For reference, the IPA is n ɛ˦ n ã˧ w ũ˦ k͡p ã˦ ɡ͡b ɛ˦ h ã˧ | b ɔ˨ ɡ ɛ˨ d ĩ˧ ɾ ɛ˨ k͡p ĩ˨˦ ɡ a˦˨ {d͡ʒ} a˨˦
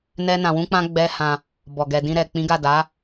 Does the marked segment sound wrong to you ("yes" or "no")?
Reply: yes